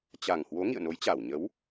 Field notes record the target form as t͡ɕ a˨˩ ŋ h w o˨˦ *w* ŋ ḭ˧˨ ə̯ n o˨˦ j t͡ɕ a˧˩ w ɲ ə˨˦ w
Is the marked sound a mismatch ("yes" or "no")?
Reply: yes